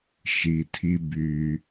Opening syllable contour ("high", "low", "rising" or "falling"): low